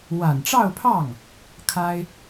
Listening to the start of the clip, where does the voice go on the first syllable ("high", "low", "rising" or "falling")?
low